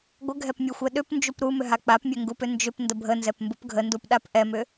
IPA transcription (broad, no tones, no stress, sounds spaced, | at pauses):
ɡʷ ə ɡʱ ɛ p mʲ u xʷ ɛ ɗ ʏ p n d͡ʒ u p ɾ u m ʏ ɦ a k͡p a p mʲ ɛ ŋ ɡ u p ʏ n d͡ʒ ʏ p n d ə bʱ ə n z ɛ p m b u p ɡʱ ə n d u p ɗ a p ʔ ɛ m ʏ